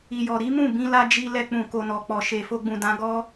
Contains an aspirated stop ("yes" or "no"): no